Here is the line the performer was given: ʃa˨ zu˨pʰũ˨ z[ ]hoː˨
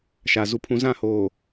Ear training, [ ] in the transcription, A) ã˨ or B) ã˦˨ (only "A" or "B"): B